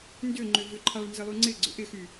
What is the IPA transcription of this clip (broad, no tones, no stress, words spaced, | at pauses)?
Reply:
ndʏŋ͡ǃʏ vʏǃʰaɭ nzɪlˠyŋ͡ǀɪɡ͡ǀʏ ʔɪxy